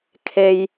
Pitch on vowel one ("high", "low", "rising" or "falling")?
low